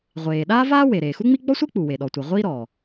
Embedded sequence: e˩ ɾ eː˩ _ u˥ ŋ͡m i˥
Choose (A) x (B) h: A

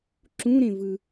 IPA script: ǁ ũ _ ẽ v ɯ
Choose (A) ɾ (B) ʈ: A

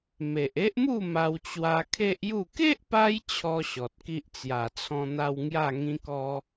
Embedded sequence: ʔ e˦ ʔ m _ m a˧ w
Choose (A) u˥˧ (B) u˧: A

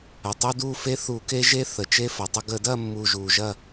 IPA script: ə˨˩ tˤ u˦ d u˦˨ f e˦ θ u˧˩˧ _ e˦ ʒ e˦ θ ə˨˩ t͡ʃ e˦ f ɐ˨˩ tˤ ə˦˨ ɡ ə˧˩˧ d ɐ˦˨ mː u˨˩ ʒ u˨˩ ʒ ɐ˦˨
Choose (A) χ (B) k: B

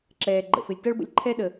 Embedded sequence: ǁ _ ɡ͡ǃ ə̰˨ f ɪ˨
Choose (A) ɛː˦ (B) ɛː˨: B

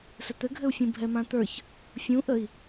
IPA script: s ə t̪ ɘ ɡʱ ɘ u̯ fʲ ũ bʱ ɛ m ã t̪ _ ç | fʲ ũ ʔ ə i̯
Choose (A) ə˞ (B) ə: A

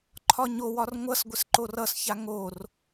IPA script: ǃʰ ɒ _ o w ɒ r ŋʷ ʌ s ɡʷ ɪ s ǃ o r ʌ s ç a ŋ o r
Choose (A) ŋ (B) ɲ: B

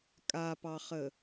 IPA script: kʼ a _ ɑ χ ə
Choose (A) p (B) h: A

